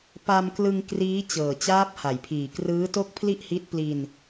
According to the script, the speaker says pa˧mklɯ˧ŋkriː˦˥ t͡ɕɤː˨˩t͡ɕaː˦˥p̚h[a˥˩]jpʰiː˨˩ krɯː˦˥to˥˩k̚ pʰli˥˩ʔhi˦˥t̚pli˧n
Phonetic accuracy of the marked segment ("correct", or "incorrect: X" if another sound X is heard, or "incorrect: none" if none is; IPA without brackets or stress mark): incorrect: a˩˦